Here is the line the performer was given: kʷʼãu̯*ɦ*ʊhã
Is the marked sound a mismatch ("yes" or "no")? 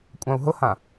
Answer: no